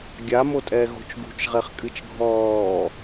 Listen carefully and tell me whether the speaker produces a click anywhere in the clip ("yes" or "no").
no